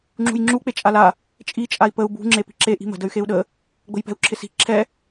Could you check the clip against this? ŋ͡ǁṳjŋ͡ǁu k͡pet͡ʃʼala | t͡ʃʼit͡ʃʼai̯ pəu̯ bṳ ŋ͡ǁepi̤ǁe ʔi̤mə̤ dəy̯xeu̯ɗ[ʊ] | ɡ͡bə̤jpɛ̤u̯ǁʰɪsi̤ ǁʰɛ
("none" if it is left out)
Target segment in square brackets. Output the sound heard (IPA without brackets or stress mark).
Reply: ə